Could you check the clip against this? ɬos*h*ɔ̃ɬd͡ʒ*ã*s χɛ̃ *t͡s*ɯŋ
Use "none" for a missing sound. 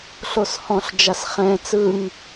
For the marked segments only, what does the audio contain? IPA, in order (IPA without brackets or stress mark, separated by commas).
h, a, t͡s